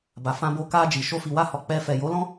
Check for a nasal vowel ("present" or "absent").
present